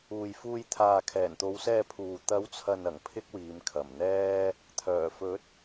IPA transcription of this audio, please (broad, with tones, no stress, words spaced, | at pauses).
uː˨jfuː˧j t̪ʰaː˨kʰɛː˨˩nt̪o˨˧wsɛː˧ pʰuː˨ t̪ɐ˨˥wt͡sʰɐ˨nɐ˨˩ŋ pʰɪ˥k̚wiː˨˧mkʰɐ˨˩mn̪ɛː˥ | t̪ʰœː˨˩fɵ˨˥t̚